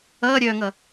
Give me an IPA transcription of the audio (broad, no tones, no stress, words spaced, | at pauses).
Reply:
ʌːɾʲœːŋʌ